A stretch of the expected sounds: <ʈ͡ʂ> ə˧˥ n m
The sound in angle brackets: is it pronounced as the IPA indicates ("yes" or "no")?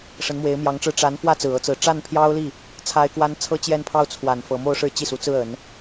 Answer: no